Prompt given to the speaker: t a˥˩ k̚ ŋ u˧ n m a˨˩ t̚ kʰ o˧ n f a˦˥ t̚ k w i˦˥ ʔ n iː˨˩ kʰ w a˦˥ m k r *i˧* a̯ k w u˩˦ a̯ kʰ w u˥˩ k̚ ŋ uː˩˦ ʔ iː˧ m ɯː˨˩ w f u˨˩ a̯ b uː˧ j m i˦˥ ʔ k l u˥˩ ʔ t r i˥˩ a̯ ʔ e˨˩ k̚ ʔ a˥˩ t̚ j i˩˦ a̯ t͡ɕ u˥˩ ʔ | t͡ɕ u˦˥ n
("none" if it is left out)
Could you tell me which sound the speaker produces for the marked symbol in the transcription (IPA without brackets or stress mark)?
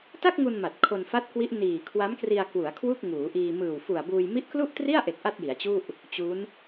i˧